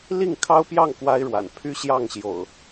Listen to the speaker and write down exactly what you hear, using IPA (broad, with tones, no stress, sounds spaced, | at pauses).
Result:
l i˥˨ ŋ kʰ ɑ˦ ʊ̯ p j ɑ˥˨ ŋ k w a˦ ɪ̯ ɻ w a̰˨˩ n pʰ y˦ ɕ j ɑ˥˨ ŋ ɕ j o̰˨˩ ʊ̯